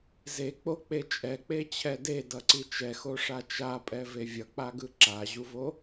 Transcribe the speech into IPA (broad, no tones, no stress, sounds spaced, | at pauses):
z e k͡p o k͡p e t͡ʃʼ ɛ k͡p e t͡ɕʰ ɛ d e d ʌ ǀ i t͡ʃ ɛ x o ʂ a t͡ʃ a pʼ ɛ v e vʲ ʌ k͡p a ɡ ɯ ǁ a ʑ u v o